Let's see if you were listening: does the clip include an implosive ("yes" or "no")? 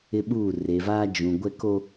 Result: yes